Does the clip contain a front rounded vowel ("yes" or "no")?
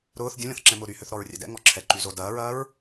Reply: yes